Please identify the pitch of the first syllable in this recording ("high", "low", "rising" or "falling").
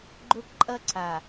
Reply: high